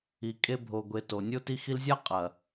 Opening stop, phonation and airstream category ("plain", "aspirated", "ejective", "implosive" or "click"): ejective